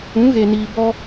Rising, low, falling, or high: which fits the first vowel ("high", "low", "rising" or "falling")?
rising